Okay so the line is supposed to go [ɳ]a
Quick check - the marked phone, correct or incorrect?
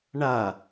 correct